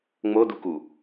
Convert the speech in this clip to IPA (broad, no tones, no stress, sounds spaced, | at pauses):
ŋ͡m o d u k u